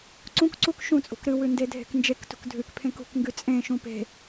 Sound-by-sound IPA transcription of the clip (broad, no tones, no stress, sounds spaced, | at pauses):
ǀ ũ k ǀ u k ʃ ũ t͡sʼ ṳ k ɾ ɨ w ʉ n d e dʱ e̤ k n d͡ʒ e k t ṳ k dʱ ʉ k pʰ ẽ k ṳ k ŋ ɡ ʉ t͡sʼ ẽ ʃ ũ p e̤